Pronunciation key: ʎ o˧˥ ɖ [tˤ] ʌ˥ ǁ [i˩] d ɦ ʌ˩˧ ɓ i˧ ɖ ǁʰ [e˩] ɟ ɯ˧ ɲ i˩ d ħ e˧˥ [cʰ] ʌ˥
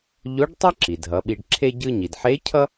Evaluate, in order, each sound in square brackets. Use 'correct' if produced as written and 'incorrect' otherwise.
correct, correct, incorrect: e˥, correct

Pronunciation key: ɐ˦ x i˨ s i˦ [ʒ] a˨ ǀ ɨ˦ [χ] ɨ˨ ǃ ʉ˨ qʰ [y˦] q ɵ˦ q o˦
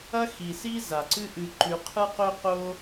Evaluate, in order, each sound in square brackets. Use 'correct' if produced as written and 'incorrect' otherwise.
incorrect: z, incorrect: ʔ, incorrect: ɨ˦

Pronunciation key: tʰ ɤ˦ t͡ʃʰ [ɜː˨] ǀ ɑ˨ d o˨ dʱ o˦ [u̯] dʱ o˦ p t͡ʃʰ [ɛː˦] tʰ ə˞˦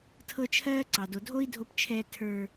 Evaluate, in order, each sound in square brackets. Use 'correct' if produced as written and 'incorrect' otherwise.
incorrect: ɜː˦, incorrect: i̯, correct

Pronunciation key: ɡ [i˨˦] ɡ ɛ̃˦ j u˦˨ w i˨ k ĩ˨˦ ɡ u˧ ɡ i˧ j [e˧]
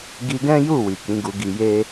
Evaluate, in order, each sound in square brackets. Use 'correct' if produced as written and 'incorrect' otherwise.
incorrect: i˧, incorrect: e˦

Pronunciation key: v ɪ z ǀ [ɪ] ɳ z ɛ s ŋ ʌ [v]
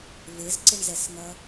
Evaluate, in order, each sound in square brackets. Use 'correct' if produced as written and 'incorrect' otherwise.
correct, incorrect: none

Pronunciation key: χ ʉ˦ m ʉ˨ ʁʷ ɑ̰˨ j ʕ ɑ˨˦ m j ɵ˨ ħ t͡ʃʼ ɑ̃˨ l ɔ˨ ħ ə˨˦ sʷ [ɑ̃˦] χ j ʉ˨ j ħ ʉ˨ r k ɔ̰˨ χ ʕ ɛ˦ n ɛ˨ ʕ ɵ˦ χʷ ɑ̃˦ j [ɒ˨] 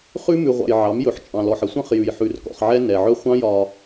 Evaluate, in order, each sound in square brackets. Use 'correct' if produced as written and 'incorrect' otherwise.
correct, correct

